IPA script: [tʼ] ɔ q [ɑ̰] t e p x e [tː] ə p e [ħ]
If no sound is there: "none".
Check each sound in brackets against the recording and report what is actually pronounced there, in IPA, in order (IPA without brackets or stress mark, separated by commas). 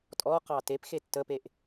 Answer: tʼ, ɑ, tː, ʔ